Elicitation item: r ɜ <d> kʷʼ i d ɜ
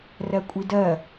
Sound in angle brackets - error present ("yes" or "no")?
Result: yes